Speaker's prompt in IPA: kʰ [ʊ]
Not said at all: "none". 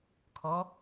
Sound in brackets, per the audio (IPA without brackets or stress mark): ɔ